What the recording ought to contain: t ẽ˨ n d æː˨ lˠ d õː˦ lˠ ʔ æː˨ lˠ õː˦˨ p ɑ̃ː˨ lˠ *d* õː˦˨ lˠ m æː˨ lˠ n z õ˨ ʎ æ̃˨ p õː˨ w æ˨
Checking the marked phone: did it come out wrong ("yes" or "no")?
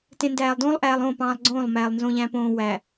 yes